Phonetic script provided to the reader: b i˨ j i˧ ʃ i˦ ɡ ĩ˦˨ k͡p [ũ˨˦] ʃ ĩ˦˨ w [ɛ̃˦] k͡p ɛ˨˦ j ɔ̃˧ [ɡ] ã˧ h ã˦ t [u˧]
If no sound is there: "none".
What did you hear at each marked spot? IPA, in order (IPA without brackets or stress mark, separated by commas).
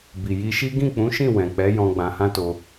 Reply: ũ˨˦, ɛ̃˨, ɡ͡b, o˧